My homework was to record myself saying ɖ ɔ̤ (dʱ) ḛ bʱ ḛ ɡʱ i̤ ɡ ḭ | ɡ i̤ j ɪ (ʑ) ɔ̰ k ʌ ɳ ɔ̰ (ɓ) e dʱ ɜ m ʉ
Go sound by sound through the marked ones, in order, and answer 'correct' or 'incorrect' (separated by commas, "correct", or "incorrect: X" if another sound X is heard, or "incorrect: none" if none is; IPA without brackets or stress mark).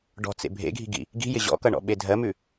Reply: incorrect: t͡s, correct, correct